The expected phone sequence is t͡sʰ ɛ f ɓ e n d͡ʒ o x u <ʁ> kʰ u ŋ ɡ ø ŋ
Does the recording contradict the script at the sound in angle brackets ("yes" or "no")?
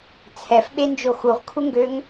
no